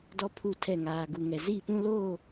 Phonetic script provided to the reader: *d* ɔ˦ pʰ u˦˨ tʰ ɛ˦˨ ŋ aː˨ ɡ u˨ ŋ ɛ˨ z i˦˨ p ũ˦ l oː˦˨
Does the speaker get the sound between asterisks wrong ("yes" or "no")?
no